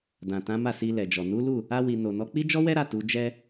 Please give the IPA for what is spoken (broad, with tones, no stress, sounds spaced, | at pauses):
d ã˨ t ã˨˦ m a˦˨ s i˧ l ɛ˨ d͡ʒ ɔ˨ n u˨˦ l u˦˨ | a˧ w i˨ n o˨ n ɔ˨˦ k͡p i˦ d͡ʒ ɔ˦ w ɛ˦ ɾ a˦˨ t u˨˦ d͡ʒ ɛ˦